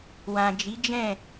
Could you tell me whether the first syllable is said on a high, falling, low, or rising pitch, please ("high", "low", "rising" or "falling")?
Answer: low